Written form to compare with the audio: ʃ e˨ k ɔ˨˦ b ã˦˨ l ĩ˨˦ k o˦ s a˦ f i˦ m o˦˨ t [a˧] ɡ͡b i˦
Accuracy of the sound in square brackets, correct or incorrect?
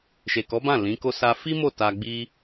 correct